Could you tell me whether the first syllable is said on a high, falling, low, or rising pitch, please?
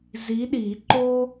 rising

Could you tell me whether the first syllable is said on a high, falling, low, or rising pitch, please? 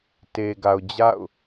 low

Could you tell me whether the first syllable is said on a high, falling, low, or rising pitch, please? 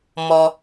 low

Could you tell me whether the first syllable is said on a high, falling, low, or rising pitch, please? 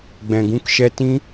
low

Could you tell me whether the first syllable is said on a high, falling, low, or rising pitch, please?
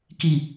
low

